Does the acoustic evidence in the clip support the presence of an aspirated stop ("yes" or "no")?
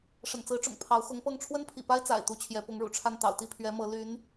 yes